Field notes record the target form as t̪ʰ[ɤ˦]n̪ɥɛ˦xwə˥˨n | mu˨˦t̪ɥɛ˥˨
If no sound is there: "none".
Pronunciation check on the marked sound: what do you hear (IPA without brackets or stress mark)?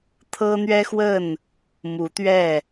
ɤ˦